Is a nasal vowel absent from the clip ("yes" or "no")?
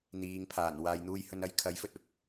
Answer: yes